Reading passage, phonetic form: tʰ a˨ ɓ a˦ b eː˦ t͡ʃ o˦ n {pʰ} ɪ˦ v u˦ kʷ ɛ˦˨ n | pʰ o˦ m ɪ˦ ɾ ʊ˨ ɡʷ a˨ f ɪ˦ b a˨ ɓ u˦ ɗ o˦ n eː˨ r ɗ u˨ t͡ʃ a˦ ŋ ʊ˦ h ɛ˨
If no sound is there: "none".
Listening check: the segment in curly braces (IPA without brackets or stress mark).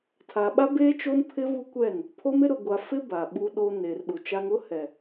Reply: pʰ